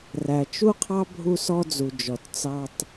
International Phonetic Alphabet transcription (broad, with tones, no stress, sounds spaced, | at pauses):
r æ˨ t͡ʃ u˦ qʰ ɑ˦ bʱ u˦ s ɔ˦ d͡z u˨ d͡ʒ ɔ˨ t t͡s ɑ˦ tˤ